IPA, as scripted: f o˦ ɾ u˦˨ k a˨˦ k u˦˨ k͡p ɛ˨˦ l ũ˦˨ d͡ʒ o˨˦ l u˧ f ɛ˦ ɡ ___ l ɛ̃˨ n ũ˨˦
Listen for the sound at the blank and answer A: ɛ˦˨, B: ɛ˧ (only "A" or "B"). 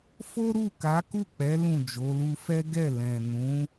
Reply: A